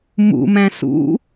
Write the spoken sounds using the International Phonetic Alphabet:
m ṵ m æ̃ s ṵ

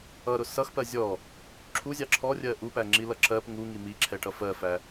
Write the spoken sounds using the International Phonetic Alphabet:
ʌ ɾ ʊ s ʌ x p ɜ zʲ ɔ | ǁʰ u zʲ ɑ ǁʰ ɔ rʲ ɜ ʔ u p æ ŋ͡ǁ i l ʌ ǁ ɜ p ŋ u ŋ i m i ǁʰ ɛ ʈ ʌ f ɜ f æ

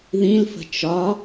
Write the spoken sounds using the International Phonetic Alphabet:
ð ĩ l f ə̤ t͡ʃ ɒ

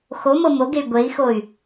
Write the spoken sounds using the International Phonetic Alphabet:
x o m ɤ m o ɡ e y̯ ɡʷ e i̯ x o y̯

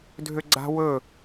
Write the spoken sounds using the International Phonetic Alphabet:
dʱ ø ɡ͡ǀ a̤ w ɵ

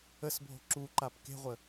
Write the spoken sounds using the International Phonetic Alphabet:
ə s bʱ o̤ ǁ u ǃ a p k e̤ ʁʷ ə

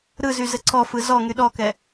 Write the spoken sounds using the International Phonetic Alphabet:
ɾ ɯ z y z ɘ ǀ ɔ f ɯ z ɔ ŋ y ɗ ɔ k ɛ

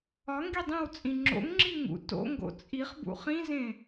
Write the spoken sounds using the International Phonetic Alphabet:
ɒ ŋ ɡ i dˤ ĩ w t͡sʼ ĩ ŋ͡ǁ o̰ ŋ ŋ͡ǁ i ŋ ṵ t o̰ ŋ ɡ o̰ t͡sʼ i χ b ṵ χ ĩ z ẽ

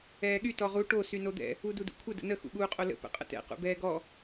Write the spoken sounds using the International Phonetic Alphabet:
ɛː ɠ y t ɔ ʁ u ʈ o s y n o d̪ ɛ̰ | u d u d ṵ kʷʰ ə d ə̰ n ə x ṵ ɠ uː qʼ o l ə̰ p ə̰ qʼ ə̰ t ɛ̰ q ṵ b ɛː ɡ ɔ

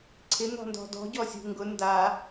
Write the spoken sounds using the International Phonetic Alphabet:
ǀʰ ɪ n̪ ɔ̤ n d ɔ̤ d ɔ̤ ɟ ɔ sʲ ṳ ŋ ɡ ʊ n d a

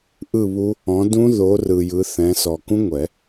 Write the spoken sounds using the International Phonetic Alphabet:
ʔ ɯ˦˨ β u˦˥ | ɔ̃˨˦ d ũ˦˥ ð o˨˦ r ɯ˨ j ɯ˨˦ θ ɛ̃˨˦ s ɔ˨ k ũ˦˥ ŋʷ ɛ˨˩˦

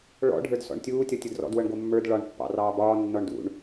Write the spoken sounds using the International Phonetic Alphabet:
ɭ ɔ̰ ɖʱ ə˞ d s ɔ̰ ɳ tʲ uː tʲ ɔ tʲ ɤ d r ɔ̰ d w ɤ ɳ ɡʷ ɤ mː ə˞ d ɭ ɒ ɳ pː ɑ̰ r ɑː b ɒː nː ɔ ɳ d ṵ ɳ

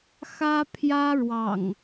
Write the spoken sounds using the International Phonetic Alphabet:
x ä˦ pʰ j ä˦ ɻ w ɑ̰˨˩ ŋ

